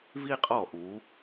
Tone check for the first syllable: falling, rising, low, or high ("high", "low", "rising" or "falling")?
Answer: high